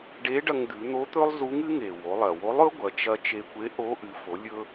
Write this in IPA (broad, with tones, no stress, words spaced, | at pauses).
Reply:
ɖe˧˥ɖɐ˧ŋd̪ʉ˩˧ n̪o˧˥t̪ɵ˥lˠzu˧˥ŋɨ˧˥ ŋe˩wo˩˧lˠɐ˩ wo˧˥lˠɵ˧˥ɡʷɐ˩˧t͡ʃɐ˧ t͡ʃe˧kʷe˧˥ʔo˧˥ ʔɨ˩˧fo˩˧lʲɵ˧